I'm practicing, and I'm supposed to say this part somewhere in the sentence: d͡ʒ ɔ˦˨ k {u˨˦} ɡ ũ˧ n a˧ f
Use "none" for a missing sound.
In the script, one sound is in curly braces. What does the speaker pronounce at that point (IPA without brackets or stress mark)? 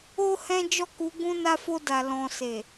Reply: u˨˦